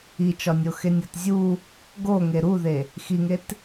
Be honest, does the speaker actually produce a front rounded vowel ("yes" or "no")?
no